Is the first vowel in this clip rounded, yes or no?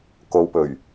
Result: yes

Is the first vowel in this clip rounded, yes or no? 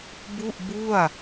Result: yes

